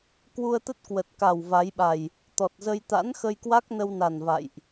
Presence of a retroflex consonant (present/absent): absent